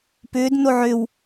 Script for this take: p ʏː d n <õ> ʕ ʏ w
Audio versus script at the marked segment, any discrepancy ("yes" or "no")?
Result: yes